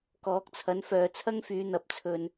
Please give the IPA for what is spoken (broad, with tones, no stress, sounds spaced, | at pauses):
k ɔː˨˥ k̚ t͡sʰ ɐ˨˥ n f œː˨ t͡sʰ ɐ˥ ŋ f yː˨˧ n̪ ɐ˨˥ p̚ t͡sʰ ɵ˧ n